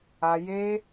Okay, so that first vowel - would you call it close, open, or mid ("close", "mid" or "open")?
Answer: open